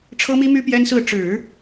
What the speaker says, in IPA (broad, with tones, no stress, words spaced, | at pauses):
ʈ͡ʂʰɤ˥mi˥my˥ pjɛ˥nsɹ̩˥˩ ʈ͡ʂɻ̩˨˩˦